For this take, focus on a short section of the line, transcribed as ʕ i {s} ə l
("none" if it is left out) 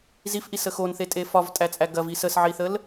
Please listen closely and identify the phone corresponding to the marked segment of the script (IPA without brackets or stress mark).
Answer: θ